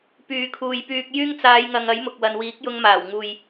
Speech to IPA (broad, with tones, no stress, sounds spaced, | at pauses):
p yː˨˧ kʰ uː˨ j p yː˧ k̚ j yː˥ ŋ t͡s aː˨˧ j ŋ ɐ˨ ŋ ɐ˨˥ j m ʊ˨ k̚ w ɐ˨ n w iː˨˥ k̚ j ʊ˧ ŋ m aː˨˩ w ŋ uː˨ j